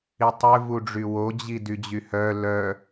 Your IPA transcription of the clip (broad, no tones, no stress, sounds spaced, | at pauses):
i tˤ ø v u ɖ͡ʐ y w o d͡ʑ i d y d͡ʑ y h œ l œ